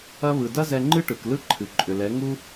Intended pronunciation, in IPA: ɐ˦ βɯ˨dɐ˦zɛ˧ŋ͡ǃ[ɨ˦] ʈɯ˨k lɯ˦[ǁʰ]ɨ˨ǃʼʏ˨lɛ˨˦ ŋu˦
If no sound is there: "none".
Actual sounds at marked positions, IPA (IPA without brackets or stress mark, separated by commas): ɨ˦, ǃʰ